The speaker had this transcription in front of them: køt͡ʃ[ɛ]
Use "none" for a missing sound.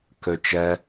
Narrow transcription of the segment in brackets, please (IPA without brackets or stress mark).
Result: ɛ